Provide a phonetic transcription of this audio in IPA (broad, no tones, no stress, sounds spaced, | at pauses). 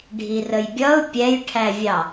ɖʱ i r ə j bʲ ʌ ʊ̯ pʲ ɛ j ʈʰ æ vʲ ɑ